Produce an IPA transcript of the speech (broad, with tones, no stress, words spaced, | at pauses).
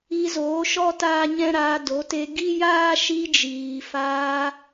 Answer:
i˧zoː˨˦ ʃɔ˦taː˦ɲɛ̃˦ɾaː˧ do˨˦te˧ ɡi˦jaː˦ ʃi˧d͡ʒiː˨faː˧